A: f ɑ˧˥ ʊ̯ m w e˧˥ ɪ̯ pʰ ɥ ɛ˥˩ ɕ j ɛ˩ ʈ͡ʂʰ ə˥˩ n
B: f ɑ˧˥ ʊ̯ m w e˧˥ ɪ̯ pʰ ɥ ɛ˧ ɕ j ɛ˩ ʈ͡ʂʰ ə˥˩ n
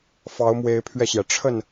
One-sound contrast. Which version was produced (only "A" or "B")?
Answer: B